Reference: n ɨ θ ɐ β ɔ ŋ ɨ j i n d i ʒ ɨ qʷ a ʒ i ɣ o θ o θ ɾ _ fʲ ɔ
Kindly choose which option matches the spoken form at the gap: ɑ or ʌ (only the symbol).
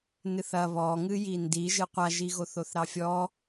ɑ